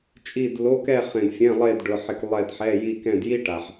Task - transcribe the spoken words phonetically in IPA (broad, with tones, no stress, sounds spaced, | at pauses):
t͡ʃʼ i˧˩ d l o˩˧˩ k ɛ˧˩ χ ẽ˩ d fʲ ɛ̃˩˧˩ lˠ e˧˩ d ɖ ʊ˩˧˩ ħ ɪ˧˩ k lˠ ɛ˧˩ d ħ ɛ˩˧˩ j i˧˩ k ɛ̃˧˩ d j i˦ ʈ a˩ ħ